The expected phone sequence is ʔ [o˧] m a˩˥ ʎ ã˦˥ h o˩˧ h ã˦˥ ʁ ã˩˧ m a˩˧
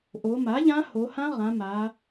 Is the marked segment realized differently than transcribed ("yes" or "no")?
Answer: yes